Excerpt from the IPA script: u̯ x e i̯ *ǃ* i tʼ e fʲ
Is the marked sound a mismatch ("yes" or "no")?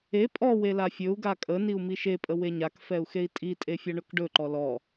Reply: yes